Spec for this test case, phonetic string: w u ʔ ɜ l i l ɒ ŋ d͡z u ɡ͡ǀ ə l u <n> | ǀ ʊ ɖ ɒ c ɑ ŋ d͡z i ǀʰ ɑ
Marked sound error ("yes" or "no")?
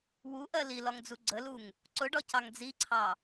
yes